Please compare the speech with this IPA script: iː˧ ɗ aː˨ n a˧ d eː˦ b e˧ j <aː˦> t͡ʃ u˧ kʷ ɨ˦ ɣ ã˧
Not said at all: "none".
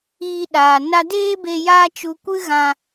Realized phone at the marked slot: aː˦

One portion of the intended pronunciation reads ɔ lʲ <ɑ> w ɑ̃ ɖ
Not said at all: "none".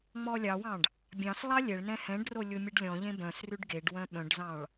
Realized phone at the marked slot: ɑ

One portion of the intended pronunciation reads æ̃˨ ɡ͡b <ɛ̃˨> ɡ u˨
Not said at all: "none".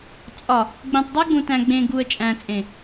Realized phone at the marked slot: ẽ˨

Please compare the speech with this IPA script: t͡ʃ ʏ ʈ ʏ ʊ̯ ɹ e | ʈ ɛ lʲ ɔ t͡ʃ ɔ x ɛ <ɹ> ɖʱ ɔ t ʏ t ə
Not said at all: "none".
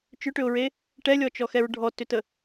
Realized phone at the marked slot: ɹ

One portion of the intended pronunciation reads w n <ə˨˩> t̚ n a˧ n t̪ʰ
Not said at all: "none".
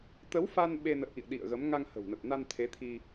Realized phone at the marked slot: ə˨˩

